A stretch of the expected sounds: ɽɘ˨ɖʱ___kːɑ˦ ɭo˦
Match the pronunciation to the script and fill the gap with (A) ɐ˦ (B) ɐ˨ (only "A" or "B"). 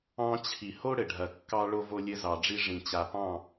B